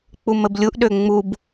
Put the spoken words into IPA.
k͡puməblʲuʔɗø ŋ͡mub

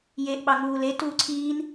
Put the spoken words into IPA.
jeʔ ɓɑŋuːle tuːǀʰiːn

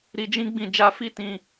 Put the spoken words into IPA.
ɾi˧d͡ʒĩ˦ɡ͡bĩ˦˨ d͡ʒa˧fi˦tĩ˧

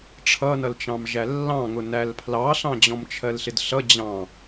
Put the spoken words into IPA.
ʈ͡ʂʰʌnʌlt͡ʃɑ̃m ʒælːɑ̃ŋʊ nælpʰlɑɬɑ̃ d͡ʑɔ̃mt͡ʃʰɜlɬɪdɬʌ d͡ʑɑ̃

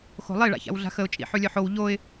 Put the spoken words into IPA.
xo̤lˠɪ ɭa̰ça̰wɮa̤xəʊ̯ t͡ʃʼḭħʉlʲœħow ʎoɪ̯

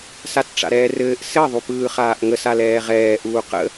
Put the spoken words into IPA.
satʈ͡ʂa̰ɾɛːrɘːʔ sɘ ðˤupɯːχaːʔŋəs alɛːʁɛː ʔuːqə̰

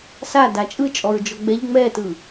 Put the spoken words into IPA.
sa dat͡ʃʼɯt͡ʃʼɔɹd͡ʒɔ ɡ͡bɛʎ ŋ͡mɛtɯ

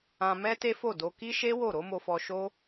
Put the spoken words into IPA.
ã˧mɛ˦te˦fo˦˨ do˧ ki˦ ʃe˦ wo˦˨ɾo˨˦mo˧fɔ˧ ʃo˦

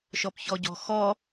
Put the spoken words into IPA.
ʃɔpçɔɟɔ̤xɔ

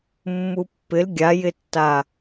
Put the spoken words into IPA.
mːupːɪl ɡʲajɪtːa

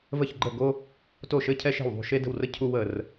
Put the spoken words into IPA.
və˥˨çɡ͡ǃə˥˨ ɡo˥ | to˥˨ ʃɘ˥ cʰɛ˥ʃe̤˥˨wðˤṳ˥˨ ʃe˥də̤˥˨wrə˥ cʰu˥wə˥˨r

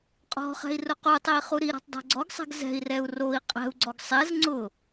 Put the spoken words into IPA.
qʼɔ̤χɛ̤i̯ rʊqutˤei̯ χuɾiɾɔ̤tˤ dˤɛ̤ɡ͡ǀɔɡsˤɛ̤ɡ zɛ̤i̯rɛu̯ roi̯ qʼɛ̤u̯ɡ͡ǀɔɡ sˤɛz ŋ͡ǀʊ

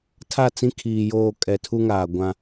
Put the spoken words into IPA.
tʰa˦˨t͡sĩ˦ kʰiː˨joː˦˨ kʼɛ˨tʰu˦ŋaː˨ ɡʷã˦

